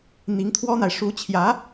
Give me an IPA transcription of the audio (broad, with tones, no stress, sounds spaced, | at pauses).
n̪ i˧˥ ŋ t̪ʰ w ɔ˥ n̪ a˨ ɪ̯ ʂ u˧˥ t͡ɕʰ j ä˧˥